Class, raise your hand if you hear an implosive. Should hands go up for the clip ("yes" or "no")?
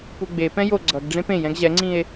no